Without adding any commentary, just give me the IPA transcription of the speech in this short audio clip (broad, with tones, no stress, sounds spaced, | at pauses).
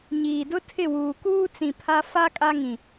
ɲ iː˨ d ʊ˦ tʰ ɪ˦˨ w uː˨ k uː˦ t͡s ĩ˨ pʰ a˦ f a˦ kʼ a˦ ŋ ĩ˨